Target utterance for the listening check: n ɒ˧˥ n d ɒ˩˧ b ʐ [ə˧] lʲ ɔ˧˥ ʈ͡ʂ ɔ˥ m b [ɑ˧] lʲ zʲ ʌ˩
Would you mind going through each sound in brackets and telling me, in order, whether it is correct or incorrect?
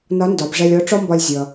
incorrect: ɛ˧, incorrect: ɒ˧

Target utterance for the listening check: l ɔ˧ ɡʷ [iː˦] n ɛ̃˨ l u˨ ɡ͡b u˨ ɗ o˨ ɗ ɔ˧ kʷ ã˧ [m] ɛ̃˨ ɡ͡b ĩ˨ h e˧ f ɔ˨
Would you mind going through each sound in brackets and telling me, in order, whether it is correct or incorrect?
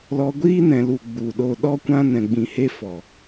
correct, incorrect: n

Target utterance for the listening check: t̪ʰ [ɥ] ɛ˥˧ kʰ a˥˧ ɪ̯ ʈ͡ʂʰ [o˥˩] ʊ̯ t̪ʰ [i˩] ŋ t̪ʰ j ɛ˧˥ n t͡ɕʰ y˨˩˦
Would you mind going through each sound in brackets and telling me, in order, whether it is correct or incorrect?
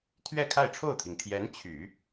correct, correct, correct

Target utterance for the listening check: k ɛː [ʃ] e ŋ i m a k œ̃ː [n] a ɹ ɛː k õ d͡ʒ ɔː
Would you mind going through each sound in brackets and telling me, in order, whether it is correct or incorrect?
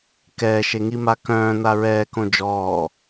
correct, correct

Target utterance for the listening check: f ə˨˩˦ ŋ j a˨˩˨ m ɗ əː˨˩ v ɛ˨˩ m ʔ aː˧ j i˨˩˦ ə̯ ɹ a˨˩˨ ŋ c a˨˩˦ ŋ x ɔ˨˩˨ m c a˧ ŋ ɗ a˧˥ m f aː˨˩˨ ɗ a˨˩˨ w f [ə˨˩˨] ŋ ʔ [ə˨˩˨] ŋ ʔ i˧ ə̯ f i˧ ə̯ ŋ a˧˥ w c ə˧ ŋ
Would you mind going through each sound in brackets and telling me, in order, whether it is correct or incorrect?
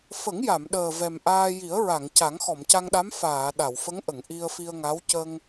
incorrect: ə˧˥, correct

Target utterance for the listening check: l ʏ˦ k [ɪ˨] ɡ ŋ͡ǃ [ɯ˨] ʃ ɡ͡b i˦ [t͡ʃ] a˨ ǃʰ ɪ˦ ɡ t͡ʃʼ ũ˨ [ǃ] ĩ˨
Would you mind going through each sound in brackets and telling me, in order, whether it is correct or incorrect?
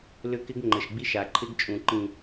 incorrect: ɪ˦, incorrect: ə˨, incorrect: ʃ, correct

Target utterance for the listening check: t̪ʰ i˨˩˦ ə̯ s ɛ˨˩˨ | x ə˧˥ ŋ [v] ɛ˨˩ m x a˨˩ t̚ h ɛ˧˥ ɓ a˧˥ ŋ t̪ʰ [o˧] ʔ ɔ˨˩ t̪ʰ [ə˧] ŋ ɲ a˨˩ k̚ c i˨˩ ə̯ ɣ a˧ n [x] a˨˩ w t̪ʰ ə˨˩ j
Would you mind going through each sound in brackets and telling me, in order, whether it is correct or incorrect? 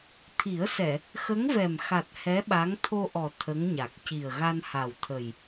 correct, correct, incorrect: ə˧˥, incorrect: h

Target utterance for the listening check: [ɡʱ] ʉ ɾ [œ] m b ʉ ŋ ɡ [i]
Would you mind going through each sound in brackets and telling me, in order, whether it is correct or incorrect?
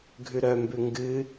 correct, correct, incorrect: ɨ

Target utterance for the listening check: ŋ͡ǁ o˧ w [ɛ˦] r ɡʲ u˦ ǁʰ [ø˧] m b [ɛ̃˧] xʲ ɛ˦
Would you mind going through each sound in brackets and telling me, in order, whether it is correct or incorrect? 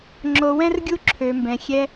incorrect: ɛ̃˦, correct, correct

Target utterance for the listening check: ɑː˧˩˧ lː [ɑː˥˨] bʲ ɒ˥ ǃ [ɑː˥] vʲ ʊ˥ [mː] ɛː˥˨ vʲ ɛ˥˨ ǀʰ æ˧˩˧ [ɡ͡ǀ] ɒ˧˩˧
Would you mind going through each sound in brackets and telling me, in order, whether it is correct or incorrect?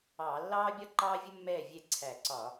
incorrect: ɑː˥, correct, correct, incorrect: ǀ

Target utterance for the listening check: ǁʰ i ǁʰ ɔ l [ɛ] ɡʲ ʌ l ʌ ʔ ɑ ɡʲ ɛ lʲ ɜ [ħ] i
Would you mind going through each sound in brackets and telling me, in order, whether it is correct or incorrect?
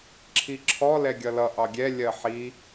correct, correct

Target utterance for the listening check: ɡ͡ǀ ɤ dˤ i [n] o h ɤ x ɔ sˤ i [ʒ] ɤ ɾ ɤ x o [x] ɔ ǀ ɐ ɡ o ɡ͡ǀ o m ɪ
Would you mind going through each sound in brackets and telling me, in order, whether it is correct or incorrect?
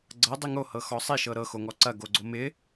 incorrect: ŋ, incorrect: ʃ, incorrect: ŋ

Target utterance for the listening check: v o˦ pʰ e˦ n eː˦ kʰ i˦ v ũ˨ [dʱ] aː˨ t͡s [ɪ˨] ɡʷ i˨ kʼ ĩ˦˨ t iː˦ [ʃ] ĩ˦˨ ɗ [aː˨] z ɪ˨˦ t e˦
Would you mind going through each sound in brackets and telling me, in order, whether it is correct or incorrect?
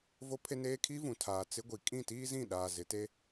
incorrect: tʰ, incorrect: ɪ˦, incorrect: z, correct

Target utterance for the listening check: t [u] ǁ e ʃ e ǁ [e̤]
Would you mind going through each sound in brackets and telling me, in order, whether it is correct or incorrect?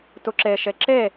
correct, incorrect: e

